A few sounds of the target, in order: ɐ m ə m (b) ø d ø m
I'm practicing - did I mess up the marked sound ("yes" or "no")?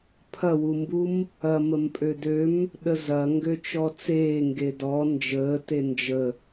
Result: yes